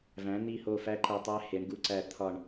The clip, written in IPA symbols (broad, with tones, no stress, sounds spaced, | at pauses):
v æ̃˨˥ n̪ i˦˨ h o˦˨ f æ˦˥ ǃ æ˦˨ tˤ æ˦˥ h e˨˥ ɳ ɡ u˦˨ ǀ æ˦˨ t̪ʰ ɒ˦˨ ɳ